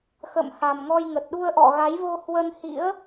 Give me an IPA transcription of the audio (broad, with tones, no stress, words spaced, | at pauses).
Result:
xə̰˧˨m ha˨˩mŋɔ˧jŋə˨˩t̚ ɗu˧ə̯ʔɔ̰˧˨ɣa˨˦jvo˧ hwə˧nhḭ˧˥ə̯